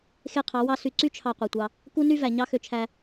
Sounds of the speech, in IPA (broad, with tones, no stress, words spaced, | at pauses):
xe˦qʰɑ˨˦wɑ˦ sy˨ǀy˦t͡ʃʰɑ˨ qʷe˨tʷɑ˧ | ku˦ny˦væ˨ ɲɑ˦xø˧t͡ʃʰæ˧